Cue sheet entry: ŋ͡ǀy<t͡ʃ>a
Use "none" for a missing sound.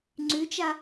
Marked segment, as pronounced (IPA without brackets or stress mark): t͡ʃ